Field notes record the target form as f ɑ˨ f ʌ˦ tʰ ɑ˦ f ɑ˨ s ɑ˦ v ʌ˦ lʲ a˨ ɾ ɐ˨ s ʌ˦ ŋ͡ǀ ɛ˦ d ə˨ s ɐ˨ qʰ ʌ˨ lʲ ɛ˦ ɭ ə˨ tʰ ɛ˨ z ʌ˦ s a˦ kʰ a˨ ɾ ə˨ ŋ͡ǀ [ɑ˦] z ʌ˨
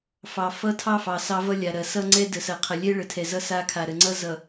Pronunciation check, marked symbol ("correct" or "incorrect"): incorrect